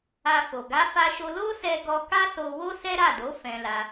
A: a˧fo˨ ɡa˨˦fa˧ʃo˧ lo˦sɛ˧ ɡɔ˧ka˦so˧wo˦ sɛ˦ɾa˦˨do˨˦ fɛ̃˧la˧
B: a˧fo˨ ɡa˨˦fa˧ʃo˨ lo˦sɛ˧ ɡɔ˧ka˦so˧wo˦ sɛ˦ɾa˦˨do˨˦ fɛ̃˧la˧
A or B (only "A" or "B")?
A